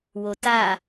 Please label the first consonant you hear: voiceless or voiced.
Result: voiced